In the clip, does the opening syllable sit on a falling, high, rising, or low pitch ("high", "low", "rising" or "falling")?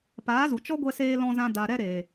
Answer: rising